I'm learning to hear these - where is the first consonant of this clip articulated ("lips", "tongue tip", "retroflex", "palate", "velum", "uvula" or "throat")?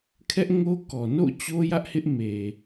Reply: velum